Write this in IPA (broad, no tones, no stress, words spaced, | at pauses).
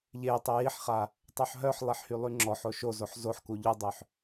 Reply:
ʎe tˤejiħχa | tˤoħɦœħlˠeħ hylˠyŋ͡ǁɔħo ʃozoħ zoħku ʎudˤøħ